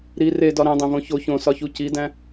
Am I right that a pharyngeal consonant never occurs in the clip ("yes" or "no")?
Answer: yes